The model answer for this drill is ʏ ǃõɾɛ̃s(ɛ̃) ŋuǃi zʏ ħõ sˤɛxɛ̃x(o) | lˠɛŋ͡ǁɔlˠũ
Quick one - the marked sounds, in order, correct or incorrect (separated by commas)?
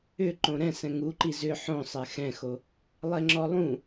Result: correct, correct